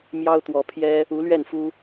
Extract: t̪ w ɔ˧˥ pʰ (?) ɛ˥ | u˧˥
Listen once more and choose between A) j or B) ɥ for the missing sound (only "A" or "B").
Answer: A